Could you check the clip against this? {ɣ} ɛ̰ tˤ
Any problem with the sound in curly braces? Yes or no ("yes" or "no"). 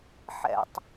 yes